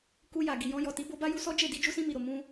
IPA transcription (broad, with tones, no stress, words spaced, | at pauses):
ku˧ ja˨ ɡi˨jɔ̃˧jɔ˨ti˨˦ bo˧ba˦ju˧sɔ˦ d͡ʒe˦˨di˧ d͡ʒu˧sĩ˧mi˨ɾo˨ mũ˧